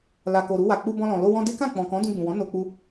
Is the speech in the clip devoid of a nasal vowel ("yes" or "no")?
no